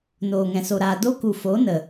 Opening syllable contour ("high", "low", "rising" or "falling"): low